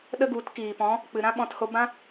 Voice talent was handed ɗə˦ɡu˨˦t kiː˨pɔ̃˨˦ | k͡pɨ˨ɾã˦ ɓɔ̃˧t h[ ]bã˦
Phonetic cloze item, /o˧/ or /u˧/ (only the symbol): o˧